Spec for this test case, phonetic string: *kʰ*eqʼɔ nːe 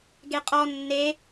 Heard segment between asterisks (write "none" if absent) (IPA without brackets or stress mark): ɡ